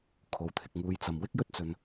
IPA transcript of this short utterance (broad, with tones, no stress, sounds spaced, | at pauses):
kʰ o˨ w t̪ʰ ɪ˨ k̚ ŋ uː˧ j t͡s ɐ˨ m w ɪ˥ k̚ j ɵ˥ t̚ t͡s ɵ˨ n